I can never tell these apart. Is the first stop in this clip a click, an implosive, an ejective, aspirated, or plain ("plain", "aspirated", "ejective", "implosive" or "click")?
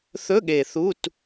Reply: implosive